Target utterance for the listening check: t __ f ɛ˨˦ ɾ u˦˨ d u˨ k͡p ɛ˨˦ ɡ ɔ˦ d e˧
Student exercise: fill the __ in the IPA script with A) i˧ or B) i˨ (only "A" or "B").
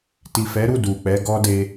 B